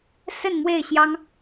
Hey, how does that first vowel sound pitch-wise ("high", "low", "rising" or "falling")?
falling